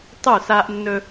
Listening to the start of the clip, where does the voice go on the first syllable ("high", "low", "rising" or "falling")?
falling